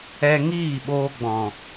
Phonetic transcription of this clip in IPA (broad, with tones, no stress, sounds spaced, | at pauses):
ɛ˧ ŋ iː˦˨ ɓ oː˧ ɡ͡b ɔ̃˨